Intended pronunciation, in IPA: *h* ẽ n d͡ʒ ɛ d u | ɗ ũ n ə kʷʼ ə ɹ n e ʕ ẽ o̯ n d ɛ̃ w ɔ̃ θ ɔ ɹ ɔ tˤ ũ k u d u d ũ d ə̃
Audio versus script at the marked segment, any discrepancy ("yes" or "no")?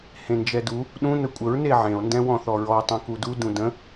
no